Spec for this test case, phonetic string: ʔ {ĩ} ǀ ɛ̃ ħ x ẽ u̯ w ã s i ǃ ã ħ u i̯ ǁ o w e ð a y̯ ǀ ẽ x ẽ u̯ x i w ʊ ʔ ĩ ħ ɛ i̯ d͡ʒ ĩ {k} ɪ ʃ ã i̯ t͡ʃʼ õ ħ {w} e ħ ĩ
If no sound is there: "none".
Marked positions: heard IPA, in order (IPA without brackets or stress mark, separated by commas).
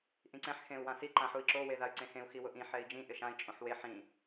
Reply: ĩ, ʔ, w